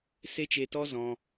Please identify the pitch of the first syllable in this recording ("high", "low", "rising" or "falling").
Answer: high